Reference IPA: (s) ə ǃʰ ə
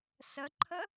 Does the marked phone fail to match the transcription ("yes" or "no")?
no